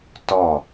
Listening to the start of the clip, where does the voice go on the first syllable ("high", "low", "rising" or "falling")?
falling